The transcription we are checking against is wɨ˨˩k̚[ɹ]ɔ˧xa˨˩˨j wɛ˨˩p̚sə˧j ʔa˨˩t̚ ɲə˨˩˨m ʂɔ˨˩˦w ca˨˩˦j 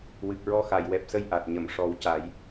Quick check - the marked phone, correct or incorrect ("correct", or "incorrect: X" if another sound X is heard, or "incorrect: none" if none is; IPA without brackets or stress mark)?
correct